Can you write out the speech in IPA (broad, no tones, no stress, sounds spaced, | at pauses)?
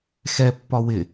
x ɛ pː ɒ w ɪ